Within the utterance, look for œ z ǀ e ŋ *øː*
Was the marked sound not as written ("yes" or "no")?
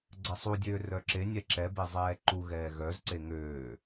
no